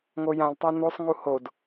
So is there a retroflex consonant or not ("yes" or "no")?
no